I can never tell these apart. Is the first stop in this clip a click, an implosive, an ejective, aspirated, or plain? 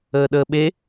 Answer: implosive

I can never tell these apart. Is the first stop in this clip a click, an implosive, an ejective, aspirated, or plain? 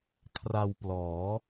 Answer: aspirated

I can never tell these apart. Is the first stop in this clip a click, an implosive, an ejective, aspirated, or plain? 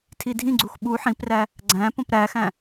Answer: aspirated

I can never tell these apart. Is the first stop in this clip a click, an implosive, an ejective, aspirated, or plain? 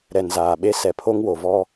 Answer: implosive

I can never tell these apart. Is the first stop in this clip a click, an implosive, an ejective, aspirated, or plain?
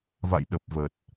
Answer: implosive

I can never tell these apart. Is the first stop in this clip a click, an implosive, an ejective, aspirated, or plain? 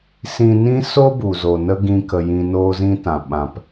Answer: plain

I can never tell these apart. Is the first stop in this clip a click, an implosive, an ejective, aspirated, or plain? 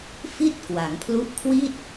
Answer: plain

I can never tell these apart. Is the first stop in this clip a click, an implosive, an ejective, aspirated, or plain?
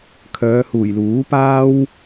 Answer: aspirated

